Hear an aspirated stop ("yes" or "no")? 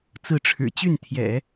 yes